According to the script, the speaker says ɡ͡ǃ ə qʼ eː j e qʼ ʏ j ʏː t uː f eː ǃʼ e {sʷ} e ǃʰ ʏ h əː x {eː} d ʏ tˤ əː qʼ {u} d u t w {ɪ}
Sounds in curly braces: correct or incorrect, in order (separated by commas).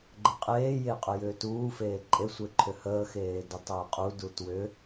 correct, correct, correct, incorrect